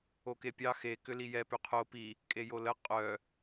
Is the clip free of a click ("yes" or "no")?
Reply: yes